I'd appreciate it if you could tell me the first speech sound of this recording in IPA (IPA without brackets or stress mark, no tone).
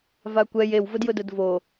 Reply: v